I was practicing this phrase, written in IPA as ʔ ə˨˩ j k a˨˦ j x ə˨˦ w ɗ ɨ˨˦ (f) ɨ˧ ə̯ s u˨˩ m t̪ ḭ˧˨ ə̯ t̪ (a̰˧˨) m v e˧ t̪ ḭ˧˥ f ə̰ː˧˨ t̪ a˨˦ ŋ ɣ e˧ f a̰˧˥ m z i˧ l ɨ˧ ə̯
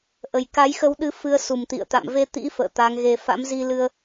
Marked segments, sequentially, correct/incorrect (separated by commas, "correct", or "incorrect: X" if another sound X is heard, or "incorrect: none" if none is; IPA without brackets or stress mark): correct, correct